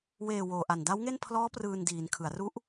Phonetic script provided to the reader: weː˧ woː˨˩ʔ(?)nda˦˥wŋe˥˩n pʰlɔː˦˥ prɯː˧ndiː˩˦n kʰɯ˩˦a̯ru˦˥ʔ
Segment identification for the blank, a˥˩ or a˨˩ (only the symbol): a˨˩